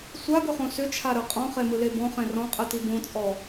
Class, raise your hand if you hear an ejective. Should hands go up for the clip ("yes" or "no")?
yes